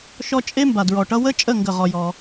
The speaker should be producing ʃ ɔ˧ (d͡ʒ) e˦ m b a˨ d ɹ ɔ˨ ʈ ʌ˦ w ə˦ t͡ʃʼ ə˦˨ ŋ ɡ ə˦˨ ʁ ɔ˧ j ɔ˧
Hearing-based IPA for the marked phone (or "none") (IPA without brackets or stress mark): t͡ʃʼ